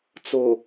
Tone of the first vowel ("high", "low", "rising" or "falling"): low